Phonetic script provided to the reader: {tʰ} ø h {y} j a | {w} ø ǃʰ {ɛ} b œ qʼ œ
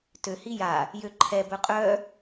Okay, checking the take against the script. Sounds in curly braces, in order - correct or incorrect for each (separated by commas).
incorrect, incorrect, incorrect, correct